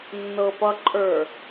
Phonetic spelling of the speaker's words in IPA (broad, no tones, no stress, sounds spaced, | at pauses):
nː ɤ p ʌ ǃʼ ə˞